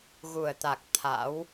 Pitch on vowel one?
low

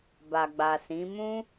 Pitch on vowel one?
low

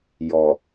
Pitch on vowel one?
low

